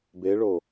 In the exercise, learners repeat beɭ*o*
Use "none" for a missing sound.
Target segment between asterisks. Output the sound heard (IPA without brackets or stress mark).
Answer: o